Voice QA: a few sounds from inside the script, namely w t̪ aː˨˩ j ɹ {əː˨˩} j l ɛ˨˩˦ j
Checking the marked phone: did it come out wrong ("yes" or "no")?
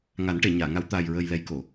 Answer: no